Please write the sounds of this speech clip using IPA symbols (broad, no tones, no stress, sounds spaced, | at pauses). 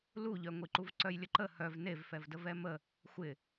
l u ʎ œ ŋʷ i ǃ u v ǀ œ j lʲ ə ǃ ə h œ v n e v f ɛ v d ə v ɛ m ə | xʷ ɪ